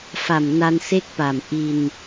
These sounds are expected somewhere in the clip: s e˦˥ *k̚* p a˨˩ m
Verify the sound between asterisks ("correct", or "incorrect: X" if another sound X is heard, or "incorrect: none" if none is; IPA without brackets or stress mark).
correct